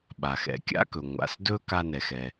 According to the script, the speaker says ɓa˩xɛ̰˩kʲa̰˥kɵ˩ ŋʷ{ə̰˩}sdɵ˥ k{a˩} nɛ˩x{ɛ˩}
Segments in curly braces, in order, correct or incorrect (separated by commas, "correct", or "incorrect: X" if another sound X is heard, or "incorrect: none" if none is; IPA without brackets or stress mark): incorrect: a̰˩, incorrect: a˥, correct